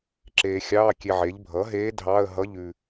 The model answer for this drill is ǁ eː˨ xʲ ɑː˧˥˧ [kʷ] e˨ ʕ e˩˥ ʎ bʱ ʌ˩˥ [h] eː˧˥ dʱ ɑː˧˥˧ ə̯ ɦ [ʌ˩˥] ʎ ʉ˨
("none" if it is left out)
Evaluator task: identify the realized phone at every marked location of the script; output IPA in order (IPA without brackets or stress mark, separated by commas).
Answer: kʲ, ɦ, ʌ˧˥˧